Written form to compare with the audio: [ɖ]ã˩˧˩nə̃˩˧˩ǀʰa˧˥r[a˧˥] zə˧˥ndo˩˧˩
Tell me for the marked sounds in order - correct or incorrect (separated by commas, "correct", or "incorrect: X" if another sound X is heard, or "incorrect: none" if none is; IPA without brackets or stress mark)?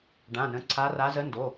correct, correct